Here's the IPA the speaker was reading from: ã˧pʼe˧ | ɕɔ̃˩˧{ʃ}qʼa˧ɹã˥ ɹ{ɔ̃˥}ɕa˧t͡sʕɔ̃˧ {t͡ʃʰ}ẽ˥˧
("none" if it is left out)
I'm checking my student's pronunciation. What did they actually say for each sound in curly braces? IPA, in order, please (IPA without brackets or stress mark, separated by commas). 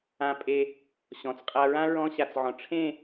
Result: t͡s, ɔ̃˥, ʈ͡ʂʰ